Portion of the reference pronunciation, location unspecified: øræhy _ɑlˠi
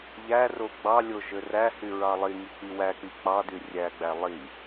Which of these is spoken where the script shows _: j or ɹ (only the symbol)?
ɹ